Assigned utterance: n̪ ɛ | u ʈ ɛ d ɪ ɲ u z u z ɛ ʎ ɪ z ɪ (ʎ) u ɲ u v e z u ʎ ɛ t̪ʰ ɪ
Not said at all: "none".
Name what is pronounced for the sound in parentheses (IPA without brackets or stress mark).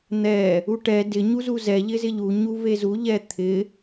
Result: ʎ